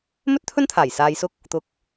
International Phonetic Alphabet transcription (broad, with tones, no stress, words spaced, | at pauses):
mɵ˥t̚t̪ʰɵ˥nt̪ʰaː˨˩j saː˨jsʊ˧k̚ | t̪ʊ˨˥k̚